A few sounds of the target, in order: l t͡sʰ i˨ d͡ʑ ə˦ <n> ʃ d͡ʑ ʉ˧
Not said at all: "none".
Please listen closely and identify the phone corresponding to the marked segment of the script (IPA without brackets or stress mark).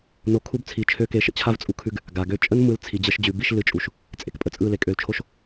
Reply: none